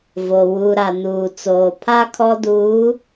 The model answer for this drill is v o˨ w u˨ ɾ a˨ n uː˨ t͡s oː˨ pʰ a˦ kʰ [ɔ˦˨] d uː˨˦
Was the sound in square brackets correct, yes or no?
no